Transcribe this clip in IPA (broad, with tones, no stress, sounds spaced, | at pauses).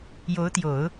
j o˧˥ ʊ̯ t̪ j o˨˩˦ ʊ̯